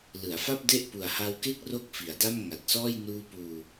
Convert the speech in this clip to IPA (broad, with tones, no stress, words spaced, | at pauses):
lɯ˩˦a̯fa˥˩p̚de˥˩ʔ pu˨˩a̯ha˧wke˥˩k̚ro˦˥k̚ fi˩˦a̯da˥˩m ŋa˨˩t̚sɔː˥˩j nuː˧puː˧